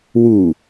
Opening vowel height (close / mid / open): close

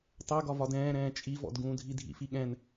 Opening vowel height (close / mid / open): mid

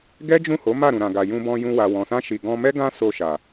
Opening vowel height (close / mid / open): mid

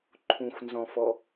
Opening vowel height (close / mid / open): close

